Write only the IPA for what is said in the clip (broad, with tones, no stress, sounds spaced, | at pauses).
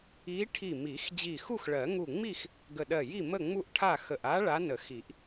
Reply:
i˧˥ ʈʰ i˧˩ m i˨˩˦ x d͡ʑ i˧˩ x u˥˨ x ɭ ɜ˨˩˦ ŋ u˧˩ ŋ͡m i˥˨ x | ɡ ə˧˩ ɗ ɜ˧˩ j i˥˨ m ə˥˨ ŋ͡m u˥˨ ʔ ʈʰ a˥˨ x ə˧˩ ʔ a˧˥ ɭ a˧˥ n ə˨˩˦ x i˨˩˦ ʔ